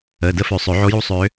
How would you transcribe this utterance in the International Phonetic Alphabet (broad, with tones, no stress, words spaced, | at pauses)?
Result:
əː˩˧˩də˧˥fø˨˩˦ sˤø˨˩˦ʕo˧˥ju˥ sˤø˧˥